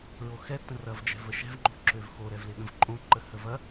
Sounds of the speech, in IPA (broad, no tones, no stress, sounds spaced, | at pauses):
ɹ o x ɛ tː ə̃ r ɐ v d͡ʒ ɛ̤ v ə ʃ ɛ̤ v ŋ͡ǃ o̤ ǁ ø v x o ɾ ɛ v l ɪ ɠ ə̃ v ǃʼ õ ǃ ə h ə v ɐ